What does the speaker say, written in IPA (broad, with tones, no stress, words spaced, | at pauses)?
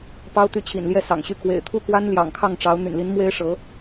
pɑ˥ʊ̯t̪y˧˥t͡ɕʰḭ˨˩n ljɛ˥˩sɑ̰˨˩ŋɕy˥˩ kwḛ˨˩ɪ̯t̪ʰu˥˩kwa˥n ljɑ̰˨˩ŋkʰɑ˥˩ŋʈ͡ʂɑ˧˥ʊ̯ n̪y̰˨˩nli˧˥n mwe˥ɪ̯ʂɤ˧˥